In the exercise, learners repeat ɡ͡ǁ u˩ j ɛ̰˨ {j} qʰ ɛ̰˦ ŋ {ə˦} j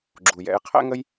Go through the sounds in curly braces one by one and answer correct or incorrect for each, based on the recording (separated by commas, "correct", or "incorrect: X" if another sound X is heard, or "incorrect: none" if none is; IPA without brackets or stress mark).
correct, correct